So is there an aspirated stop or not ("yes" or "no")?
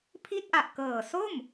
yes